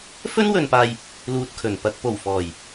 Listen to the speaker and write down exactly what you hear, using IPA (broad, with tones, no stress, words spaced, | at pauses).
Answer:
fɵ˥nwɵ˨npaː˨j | luː˨t̚kʰɵ˨˩n pɐ˨k̚po˨˩wfɔː˨˩j